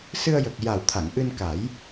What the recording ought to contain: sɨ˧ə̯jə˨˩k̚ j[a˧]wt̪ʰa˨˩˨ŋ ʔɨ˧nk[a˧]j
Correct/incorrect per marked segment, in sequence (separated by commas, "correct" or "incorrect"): incorrect, incorrect